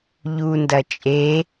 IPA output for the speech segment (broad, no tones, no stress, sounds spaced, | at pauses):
ʎ u n d ɐ t͡ʃʼ e